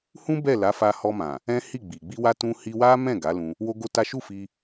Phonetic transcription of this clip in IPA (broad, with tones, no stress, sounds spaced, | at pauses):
h ũ˦ b ɛ˦˨ l a˨˦ f a˧ h ɔ˧ m ã˨ | ɛ̃˦ h i˦˨ ɡ͡b i˨ ɡ͡b i˧ w a˧ t ũ˧ h i˧ w a˦ m ɛ̃˦˨ ɡ a˨˦ l ũ˧ | w o˦ ɡ o˦ t a˦ ʃ u˦˨ f i˧